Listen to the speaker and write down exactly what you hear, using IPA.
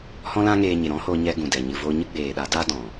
h ɔ̃˦ l ã˦ ŋ eː˧ ɲ e˨ ɾ ɔ̃˦ h o˧ ɲ ɛ˧ ɡ ũ˨ d ɛ˨ ɲ ɨ˨ v o˧ ɲ ɨ˦ ɡ͡b eː˨ ɗ a˨˦ d a˦ d ɔ̃˨

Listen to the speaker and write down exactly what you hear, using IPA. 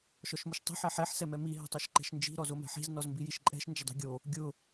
ʃ ɔ ʃ m ʊ ʃ tˤ i̤ ħ ɛ ħ ɛ ħ s ɛ m ɛ m i ɦ ɛ̤ tˤ o ʃ ǃ ɛ̤ ʃ n d͡ʒ i̤ ɾ ɔ z o m ɛ̤ ħ i̤ z n ɔ z m b i j i ʃ ǃʼ ɛ̤ ʃ n d͡ʒ ɪ dˤ i̤ ɡʲ o | ɡʲ ʊ

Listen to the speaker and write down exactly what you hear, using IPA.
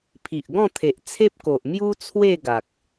pʰ i˨ ʔ ɡ ɔ̃˥˧ t̪ʰ e˨ ʔ t͡sʰ e˦ p̚ k o˨ ʔ m j u˦ t͡sʰ w e˥˧ ɡ a˨ k̚

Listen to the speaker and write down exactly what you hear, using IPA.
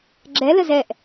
ɡ͡ǁ ɛ l ə z ɛ ʔ

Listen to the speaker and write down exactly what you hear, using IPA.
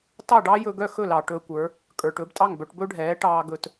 t ɑ˥˩ ɖ ɑ˥ j ɵ˧ ɡ œ˥˩ x ɵ˥˩ l ɑ˩ ʈ ɵː˧ kʷ ə˞˩˥ | kʼ ə˞˩ ʈ ɵː˩˥ b tʼ ɑ˥˩ ŋ b œ˧ ʈ b ɵ˥ ɖʱ ɛː˩˥ ʈ ɑː˧ ɡ ɵ˧ t

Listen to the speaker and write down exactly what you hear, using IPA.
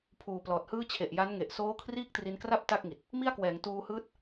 pʰ uː˨˩ p l ɔː˨˩ t̚ h ɯː˥˩ t͡ɕʰ e˨˩ ʔ j a˦˥ n ŋ e˨˩ ʔ s oː˦˥ kʰ r iː˥˩ k̚ t r i˧ n k r a˥˩ p̚ t a˥˩ k̚ ŋ i˨˩ t̚ | m i˥˩ a̯ k w ɛː˩˦ ŋ t uː˧ h ɯː˦˥ t̚

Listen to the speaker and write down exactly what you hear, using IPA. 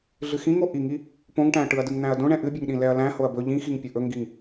ɮ ɨ x ĩ ŋ o ʔ i ŋ i | p õ ŋ ʈ æ̃ ɐ̯ ʈ ɯ ɐ̯ d ɯ ŋ n̪ æ̃ ɐ̯ d õ ɳ ɛ̃ ʔ ɨ bʲ ɛ ŋ ɗ ĩ l ɛ ɐ̯ l æ̃ h o ɐ̯ b ɵ ʎ ĩ x i ŋ pʲ ɵ ʔ ɵ ŋ ɡ i ŋ

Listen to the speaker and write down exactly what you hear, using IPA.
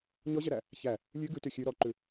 ɲ ɔ ʑ ɛ ɾ æ | ç æ | lʲ ʉ ɡ ʉ t y xʲ ʉ ɾ ɔ ǃ ʉ

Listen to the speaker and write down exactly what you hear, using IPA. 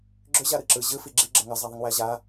ɡ͡ǁ ʏ ʑ a ɾ ɯ ǁ ɯ ʑ ɯ f i ɡ͡ǁ i ɡ͡ǁ ə ŋ ɐ zˤ a ðˤ i ŋ w æ ʑ a

